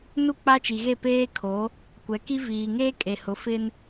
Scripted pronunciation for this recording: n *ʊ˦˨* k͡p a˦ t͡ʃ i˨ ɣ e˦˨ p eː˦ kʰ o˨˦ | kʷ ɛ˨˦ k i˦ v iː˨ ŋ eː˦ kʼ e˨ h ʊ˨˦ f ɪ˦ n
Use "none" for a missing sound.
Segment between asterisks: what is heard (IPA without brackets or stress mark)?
u˦˨